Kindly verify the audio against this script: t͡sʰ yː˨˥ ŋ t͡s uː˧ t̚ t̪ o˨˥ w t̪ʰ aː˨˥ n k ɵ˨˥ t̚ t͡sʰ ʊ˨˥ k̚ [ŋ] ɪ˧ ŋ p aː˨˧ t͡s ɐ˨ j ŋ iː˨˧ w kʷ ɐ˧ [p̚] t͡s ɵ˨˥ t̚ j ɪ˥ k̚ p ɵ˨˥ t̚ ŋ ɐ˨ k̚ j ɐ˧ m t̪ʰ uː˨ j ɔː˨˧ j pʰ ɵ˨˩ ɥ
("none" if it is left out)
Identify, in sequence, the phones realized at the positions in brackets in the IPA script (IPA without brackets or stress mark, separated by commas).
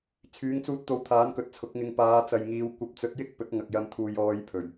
ŋ, p̚